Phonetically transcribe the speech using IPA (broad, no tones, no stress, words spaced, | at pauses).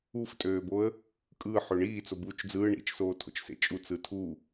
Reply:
uftʼøːboə̯ | kʼɯː ħøɳiː t͡sobuːt͡ʃd͡zɯː ɳḭt͡ʃsoː tʰo̰t͡ʃsḛt͡ʃʼu t͡sɯtʰu